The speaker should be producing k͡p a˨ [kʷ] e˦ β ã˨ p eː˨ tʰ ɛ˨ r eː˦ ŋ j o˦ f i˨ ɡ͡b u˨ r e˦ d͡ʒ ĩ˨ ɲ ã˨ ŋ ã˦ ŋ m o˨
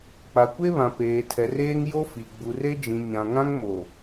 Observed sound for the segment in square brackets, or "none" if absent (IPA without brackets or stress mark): kʷ